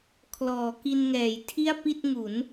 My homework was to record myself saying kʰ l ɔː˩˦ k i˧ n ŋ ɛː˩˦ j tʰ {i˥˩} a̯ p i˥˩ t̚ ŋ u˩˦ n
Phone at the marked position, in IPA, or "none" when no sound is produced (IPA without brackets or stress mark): i˥˩